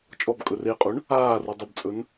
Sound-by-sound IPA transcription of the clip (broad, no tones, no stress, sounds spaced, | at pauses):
t͡ʃʼ ɔ b kʼ ɵ r e qʼ u ɳ | aː r u dˤ ə b t͡sʼ ɵ n